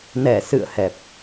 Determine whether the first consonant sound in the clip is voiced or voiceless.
voiced